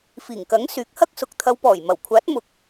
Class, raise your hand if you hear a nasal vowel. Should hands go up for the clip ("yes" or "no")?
no